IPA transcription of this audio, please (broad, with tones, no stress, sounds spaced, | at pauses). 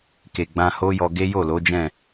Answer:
k e˨ ɡ͡b ã˧ h o˦ j ɔ˧ ɡ e˦ j o˦˨ l o˨˦ d͡ʒ ɛ̃˦˨